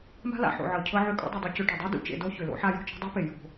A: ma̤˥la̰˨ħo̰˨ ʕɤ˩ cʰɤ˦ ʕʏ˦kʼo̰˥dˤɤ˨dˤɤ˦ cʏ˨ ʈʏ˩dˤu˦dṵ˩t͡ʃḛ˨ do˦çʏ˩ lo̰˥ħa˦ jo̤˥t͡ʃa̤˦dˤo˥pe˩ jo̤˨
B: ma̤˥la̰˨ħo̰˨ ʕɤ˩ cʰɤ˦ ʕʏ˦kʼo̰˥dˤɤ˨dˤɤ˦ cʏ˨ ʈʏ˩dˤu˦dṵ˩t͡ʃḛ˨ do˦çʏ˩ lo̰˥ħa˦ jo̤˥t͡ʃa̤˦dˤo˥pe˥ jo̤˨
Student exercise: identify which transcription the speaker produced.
A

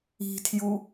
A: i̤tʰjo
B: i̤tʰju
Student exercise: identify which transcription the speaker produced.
B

